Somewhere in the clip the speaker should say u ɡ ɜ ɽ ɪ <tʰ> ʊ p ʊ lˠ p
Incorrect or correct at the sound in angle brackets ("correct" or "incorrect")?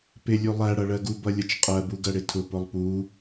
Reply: correct